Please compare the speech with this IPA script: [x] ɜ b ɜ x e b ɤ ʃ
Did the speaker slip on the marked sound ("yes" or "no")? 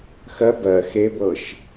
no